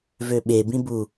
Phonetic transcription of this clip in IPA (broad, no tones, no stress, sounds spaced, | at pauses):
v ø ɓ e b ĩ b u